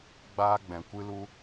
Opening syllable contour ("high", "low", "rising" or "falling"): high